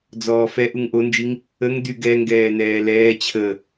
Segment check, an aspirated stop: present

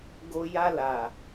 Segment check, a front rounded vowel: absent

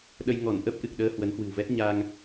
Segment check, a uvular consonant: absent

